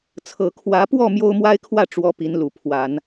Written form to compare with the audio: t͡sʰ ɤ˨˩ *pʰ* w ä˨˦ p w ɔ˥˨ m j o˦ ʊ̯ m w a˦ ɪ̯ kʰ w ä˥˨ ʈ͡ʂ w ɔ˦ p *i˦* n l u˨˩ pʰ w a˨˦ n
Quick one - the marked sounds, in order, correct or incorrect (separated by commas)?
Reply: incorrect, incorrect